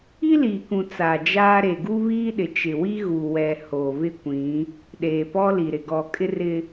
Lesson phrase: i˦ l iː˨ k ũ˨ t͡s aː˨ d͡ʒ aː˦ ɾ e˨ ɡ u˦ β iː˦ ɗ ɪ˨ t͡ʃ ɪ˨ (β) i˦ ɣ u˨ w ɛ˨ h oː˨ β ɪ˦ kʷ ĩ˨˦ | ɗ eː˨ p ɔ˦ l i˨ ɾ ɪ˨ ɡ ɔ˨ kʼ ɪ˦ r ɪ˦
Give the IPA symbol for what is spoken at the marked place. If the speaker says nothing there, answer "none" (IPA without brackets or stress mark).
w